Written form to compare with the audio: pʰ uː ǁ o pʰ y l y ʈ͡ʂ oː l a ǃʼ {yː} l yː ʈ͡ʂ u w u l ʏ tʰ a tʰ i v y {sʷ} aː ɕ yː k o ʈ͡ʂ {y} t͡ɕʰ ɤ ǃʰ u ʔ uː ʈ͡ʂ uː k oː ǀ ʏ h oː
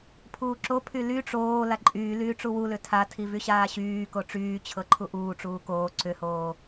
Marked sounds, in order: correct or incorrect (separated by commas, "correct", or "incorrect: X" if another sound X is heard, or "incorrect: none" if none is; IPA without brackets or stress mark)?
correct, incorrect: ɕ, incorrect: yː